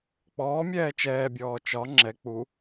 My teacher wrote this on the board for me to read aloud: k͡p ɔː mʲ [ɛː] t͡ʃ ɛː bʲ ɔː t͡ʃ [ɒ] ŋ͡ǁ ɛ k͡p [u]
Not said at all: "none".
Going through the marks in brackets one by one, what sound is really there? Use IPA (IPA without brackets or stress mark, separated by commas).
ɛː, ɒ, u